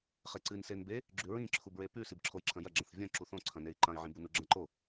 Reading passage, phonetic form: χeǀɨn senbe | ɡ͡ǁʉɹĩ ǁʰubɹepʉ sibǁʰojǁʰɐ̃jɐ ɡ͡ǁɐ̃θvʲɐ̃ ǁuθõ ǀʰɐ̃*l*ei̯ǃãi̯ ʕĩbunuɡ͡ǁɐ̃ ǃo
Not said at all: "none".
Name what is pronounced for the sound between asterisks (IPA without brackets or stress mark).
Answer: n